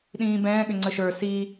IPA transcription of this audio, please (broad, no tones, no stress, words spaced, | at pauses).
ɗĩːbɛ̃ː ɠʏŋ͡ǀəʃə˞ si